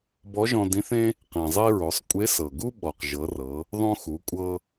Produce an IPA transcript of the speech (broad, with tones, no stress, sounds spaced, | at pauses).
b ɔ˧˥ ʒ ɔ̃˧ d ĩ˧˥ θ ẽ˥ | q ĩ˩ zˤ i˧ ɹ o˩˧ sˤ kʷʼ e˧˥ s ɤ˩ ɡ u˥ ɓ ɔ˩ q ʒ ɤ˩˧ r ɤ˩˧ | ðˤ õ˧ x u˩˧ kʷʼ ɤ˧